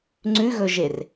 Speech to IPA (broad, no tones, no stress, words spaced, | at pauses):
ŋ͡ǀʉɣɵʒer